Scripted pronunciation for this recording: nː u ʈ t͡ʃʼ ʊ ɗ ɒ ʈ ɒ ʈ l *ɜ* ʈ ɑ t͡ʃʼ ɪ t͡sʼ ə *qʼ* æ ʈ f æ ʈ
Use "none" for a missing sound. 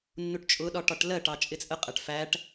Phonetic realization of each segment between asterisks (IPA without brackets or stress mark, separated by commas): ɜ, qʼ